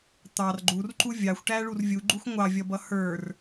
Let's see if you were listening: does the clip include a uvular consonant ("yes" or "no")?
no